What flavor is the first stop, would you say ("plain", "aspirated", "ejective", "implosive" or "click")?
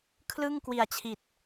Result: aspirated